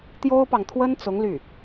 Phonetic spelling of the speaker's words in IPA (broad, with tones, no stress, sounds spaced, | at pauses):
t̪ j o˥ ʊ̯ p ɑ˨ ŋ t̪ʰ w ə˥ n t͡s ʊ˧˥ ŋ l y˥˩